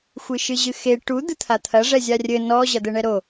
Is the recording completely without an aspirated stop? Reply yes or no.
no